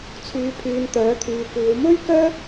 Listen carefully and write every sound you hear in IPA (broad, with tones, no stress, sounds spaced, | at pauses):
t͡sʰ yː˨ pʰ yː˨ n t̪ œː˨˥ t̪ʰ yː˨ kʷ iː˨˧ w m ɵ˥ ɥ k œː˥